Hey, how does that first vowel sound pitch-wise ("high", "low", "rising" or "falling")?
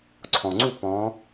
low